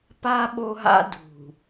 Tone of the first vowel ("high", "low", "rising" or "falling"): high